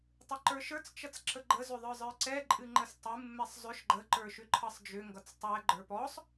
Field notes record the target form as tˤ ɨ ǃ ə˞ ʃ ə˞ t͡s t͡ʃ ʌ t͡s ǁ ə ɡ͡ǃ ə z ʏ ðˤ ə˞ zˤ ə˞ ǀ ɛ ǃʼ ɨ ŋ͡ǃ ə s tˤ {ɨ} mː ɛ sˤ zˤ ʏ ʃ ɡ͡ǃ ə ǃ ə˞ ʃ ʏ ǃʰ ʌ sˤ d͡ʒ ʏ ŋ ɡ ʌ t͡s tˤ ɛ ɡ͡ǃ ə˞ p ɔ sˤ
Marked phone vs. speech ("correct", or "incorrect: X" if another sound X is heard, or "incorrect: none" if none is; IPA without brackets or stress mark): correct